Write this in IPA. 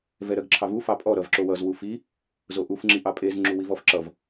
v ɛ ɾ ɜ ɡ ǁʰ ɑ v u f ɑ pʼ ɔ ɾ ʌ v ǁ o w ʌ z w u f i | z o ʔ u f ŋ͡ǁ i ʔ ɑ pʼ e z ŋ͡ǁ u w i v ɔ f ǁ ʌ v

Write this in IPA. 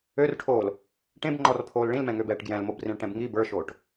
ø r ʈʰ oː l | ʈ ẽ b ŋ͡ǃ ɔ r pʰ oː l ɭ ĩ l m ɛ̃ ŋ ø b ɛː ʈ ɡ j ɛ̃ l m o b r ĩ ɭ ʈ ɛ̃ b ŋ i b ə˞ ʃ oː ʈ

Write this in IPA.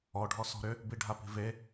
ɔ ɖʱ ɔ s ɔ̤ ɾ ʏ | b i ɖʱ a p i̤ v e

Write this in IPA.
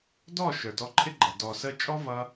d ɔ˦˨ ʃ ə˞˨ d ɔ˧ ǃʰ ɪ˦ ɡ͡ǃ ʌ˨ d ɔ˨ s ə˧ t͡ʃʼ ɔ˦ v ʌ˦

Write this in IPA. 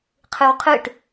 qʰ ɯ w qʰ ɯ ʈ

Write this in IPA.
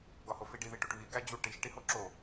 ɡ ɒ h o f i ɖ i ð i ʈ u ʈ β i ɡ æ d͡ʑ u ʈ i ʃ ʈ i h o ǁ o

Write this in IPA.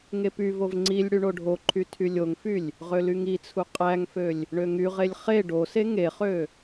ŋ e p y v o v ŋ͡ǀ i lʲ ɽ y ɳ o ɖʱ o ǃʰ y tʰ y lʲ o ŋ f y lʲ | ʁ ø l y ŋ i t͡sʰ u qʼ æ ŋ f ø lʲ | ɳ ø ŋ y ʁ e lʲ χ e ɖ o s e ŋ e χ ø

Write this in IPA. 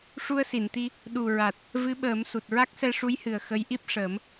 ʂ u˧ ə̯ s i˨˩˨ n t̪ i˧ | ɗ u˨˩ ɹ a˨˩ t̚ | v ɨ˧˥ ɓ əː˨˩˦ m s u˨˩ t̚ ɹ a˦˥ k̚ s ɛ˧ ʂ u˧˥ j h ɨ˨˩ ə̯ x ə˧˥ j ʔ i˦˥ p̚ ʂ əː˨˩˦ m

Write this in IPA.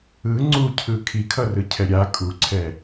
ɯ ŋ͡ǀ u cʰ ɯ kʰ i kʰ ʌ r ɯ cʰ ɛ ɾʲ a kʼ u ǀʰ ɛ

